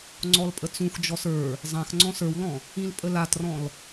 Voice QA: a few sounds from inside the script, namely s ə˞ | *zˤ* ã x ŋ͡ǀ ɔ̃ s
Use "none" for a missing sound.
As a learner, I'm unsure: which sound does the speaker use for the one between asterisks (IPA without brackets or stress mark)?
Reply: zˤ